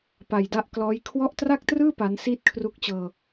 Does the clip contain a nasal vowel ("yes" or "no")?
no